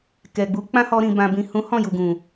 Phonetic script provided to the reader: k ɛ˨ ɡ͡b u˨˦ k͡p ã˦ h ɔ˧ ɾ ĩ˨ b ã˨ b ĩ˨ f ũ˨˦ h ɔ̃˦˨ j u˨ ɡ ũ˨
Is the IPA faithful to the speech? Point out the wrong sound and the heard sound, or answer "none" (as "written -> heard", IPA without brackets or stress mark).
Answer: f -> h